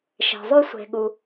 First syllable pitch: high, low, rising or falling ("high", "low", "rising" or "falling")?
low